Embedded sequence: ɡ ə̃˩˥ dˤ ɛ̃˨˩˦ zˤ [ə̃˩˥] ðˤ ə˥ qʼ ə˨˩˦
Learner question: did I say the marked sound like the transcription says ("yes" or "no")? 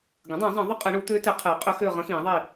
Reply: no